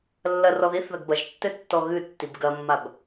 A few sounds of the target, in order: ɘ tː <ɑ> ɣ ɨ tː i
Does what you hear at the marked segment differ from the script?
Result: yes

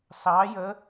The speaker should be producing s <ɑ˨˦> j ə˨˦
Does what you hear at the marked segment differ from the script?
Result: no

